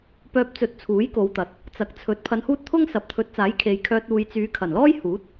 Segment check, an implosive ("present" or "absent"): absent